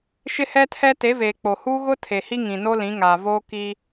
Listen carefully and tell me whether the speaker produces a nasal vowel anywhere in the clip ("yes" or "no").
yes